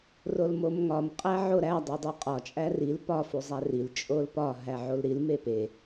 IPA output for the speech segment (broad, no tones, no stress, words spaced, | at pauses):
rolmomŋɒm qʼæʕoɾæ dˤedˤuqʼɒ t͡ʃʼæril pɒ fuzˤæril t͡ʃʼolpɒ ɦæʕolɾil mepe